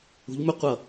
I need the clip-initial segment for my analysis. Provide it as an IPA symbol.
ṳ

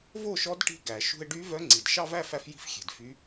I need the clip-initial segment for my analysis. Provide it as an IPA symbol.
v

